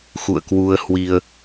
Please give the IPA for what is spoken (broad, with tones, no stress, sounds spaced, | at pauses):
x ṵ˧˨ ə̯ k w u˧ ə̯ h w i˧ ə̯